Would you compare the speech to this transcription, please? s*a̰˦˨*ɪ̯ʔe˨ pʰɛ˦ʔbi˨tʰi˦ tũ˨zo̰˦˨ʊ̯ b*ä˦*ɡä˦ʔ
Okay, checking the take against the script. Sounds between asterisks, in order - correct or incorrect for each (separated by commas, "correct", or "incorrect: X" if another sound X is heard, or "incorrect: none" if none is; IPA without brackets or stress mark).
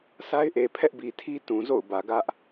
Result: incorrect: a˦, incorrect: ä˨